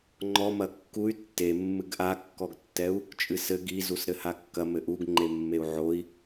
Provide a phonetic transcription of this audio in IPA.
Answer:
ŋ͡ǃɔmɐ kːuy̯ tːe mːɨɡʔakːɔɡtːɛu̯ | t͡ʃʼɨsɘ ɡizus ɾɘhakːɐ mɘʔuɡŋ͡ǃemːeu̯ ʕoi̯

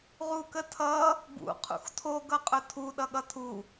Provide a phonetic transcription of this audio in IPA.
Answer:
ʁukətʰʌ | bṵ qʰṵxtʰo ɡʌqʼʊtʰu ɗʌɠʌtʰu

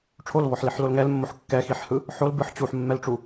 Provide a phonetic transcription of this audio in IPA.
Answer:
ʈ͡ʂʰolvɔħliħlol ŋɛlmːoħ kːɛxiħhɯ | ħol bɯħ t͡ɕuħmːɛlʈ͡ʂu

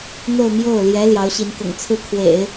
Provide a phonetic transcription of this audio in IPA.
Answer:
n̪o˥˧ʊ̯mjo˥˩ʊ̯ ljɛ˧˥ ljɑ˧˥ʊ̯ɕi˧˥nkʊ̰˨˩ŋ t͡sʰɹ̩˥˩kʰwḛ˨˩˦ɪ̯

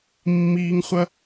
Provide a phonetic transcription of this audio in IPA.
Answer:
mːiː˧ŋχʷɐ˦

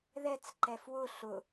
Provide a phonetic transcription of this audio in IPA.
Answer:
ðɛt͡s ǃɛfwʊ ɬʊ

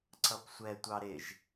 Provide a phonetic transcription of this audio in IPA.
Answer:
ǀʌpsʷɛ tʷɑɾɪʒ

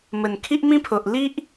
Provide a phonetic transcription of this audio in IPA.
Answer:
mə˨˩nkʰi˦ʔmĩ˦pʰo˨ʔ li˦ʔ

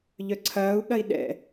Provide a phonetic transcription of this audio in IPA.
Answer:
ʎœǀʰɐːu̯ɠɐi̯ ɗɛ̰

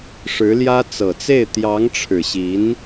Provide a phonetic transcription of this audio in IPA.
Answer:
ʂɻ̩˧˥ljä˥ t͡sɤ˨˩t͡se˥˩ɪ̯ t̪jɑ˧˥ŋʈ͡ʂʰɻ̩˨˩ɕi˧˥n

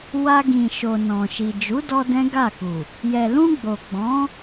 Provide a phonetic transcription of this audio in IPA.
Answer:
wa˧ɡĩ˨ʃo˨ nɔ̃˨ʃi˨ d͡ʒu˨˦dɔ˧ dɛ̃˦ɡa˦˨ku˨ | jɛ˨lũ˧ ɡ͡bo˨ɡ͡bɔ̃˨˦

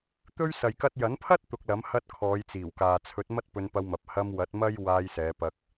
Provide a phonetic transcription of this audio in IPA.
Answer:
t̪ɵ˥ɥ sɐ˨jkɐ˧t̚jɐ˨˥npʰɐ˥t̚ t̪ʊ˧k̚lɐ˨˥m hɐ˧t̚ kʰɔː˨˧jt͡siː˨˩wkaː˨ t͡sʰɵ˨˥t̚ mɐ˥t̚pɵ˧npɐ˧wmɐ˨p̚ hɐ˧mwɐ˨˥t̚ mɐ˥j waː˧jsɛː˨˧pɐ˧k̚

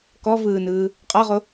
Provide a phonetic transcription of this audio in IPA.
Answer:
kɔvɯːnɯː | qʼɒʁo

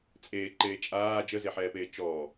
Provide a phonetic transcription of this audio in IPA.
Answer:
t͡sʼeːǃeː t͡ʃʼaː d͡ʒəzeħɛːpeː t͡ʃɔː

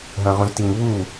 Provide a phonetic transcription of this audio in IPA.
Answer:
ɦɐ̃ʁũztiŋβu

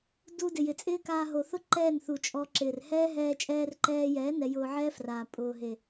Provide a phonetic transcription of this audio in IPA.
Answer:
du˧ dɪ˨ jɪ˨t͡sʼɪː˦kaː˧ ɦo˨θʊ˦ ǃɛː˦˨nθu˨ t͡ʃʼɔ˧ ǁɪː˨rhɛː˦ɦɛː˧ t͡ʃʼɛː˧rǃɛː˧jɛː˨˦ nɛ˧jʊː˧ʕɛː˦fraː˨ pʼʊː˨ ɦe˨

